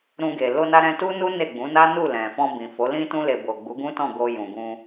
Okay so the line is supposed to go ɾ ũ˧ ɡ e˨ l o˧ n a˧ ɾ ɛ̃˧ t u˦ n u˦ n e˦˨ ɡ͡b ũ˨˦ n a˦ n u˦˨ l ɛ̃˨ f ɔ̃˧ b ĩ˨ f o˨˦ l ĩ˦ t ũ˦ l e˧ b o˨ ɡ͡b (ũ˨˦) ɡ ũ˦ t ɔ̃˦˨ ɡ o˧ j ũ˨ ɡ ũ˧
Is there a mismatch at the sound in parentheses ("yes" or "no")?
yes